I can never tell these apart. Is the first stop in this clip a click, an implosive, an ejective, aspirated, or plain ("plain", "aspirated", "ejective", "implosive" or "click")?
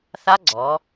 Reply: click